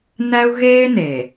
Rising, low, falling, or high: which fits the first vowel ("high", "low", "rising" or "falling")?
high